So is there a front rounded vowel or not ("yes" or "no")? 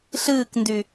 yes